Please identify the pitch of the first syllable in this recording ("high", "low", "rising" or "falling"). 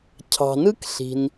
low